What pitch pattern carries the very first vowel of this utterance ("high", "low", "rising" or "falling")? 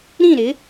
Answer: falling